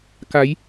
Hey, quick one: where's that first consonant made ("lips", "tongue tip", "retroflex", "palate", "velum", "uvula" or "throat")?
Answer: velum